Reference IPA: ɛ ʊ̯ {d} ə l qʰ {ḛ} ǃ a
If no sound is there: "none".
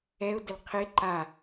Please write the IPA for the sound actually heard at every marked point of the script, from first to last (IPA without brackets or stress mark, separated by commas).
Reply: d, e